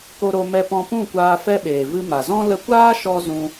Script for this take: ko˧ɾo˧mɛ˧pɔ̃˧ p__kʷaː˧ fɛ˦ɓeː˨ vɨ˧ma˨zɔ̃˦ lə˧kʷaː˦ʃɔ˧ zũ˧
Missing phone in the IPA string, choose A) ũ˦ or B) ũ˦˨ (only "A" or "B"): B